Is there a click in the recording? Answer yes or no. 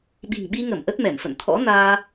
no